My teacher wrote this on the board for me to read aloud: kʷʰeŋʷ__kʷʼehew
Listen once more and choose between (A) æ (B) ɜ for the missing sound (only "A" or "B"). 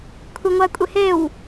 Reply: A